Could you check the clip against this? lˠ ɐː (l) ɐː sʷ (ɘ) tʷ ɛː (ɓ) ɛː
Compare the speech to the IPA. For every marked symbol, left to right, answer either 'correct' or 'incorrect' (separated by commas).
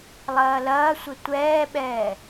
correct, correct, correct